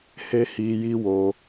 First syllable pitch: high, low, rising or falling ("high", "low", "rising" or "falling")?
high